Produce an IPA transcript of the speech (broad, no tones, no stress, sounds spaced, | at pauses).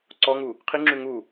ǀ ɔ ŋ u | qʰ i ŋ͡ǁ ʉ ŋ u